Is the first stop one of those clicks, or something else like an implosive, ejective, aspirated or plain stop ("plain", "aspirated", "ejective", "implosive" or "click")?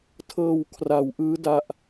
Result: aspirated